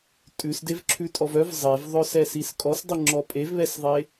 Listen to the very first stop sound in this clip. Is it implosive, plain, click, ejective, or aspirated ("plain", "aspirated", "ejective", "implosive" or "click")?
ejective